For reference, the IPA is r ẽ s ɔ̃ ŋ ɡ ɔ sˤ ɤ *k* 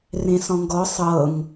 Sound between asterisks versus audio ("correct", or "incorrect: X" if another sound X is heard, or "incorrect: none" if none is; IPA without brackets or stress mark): incorrect: ŋ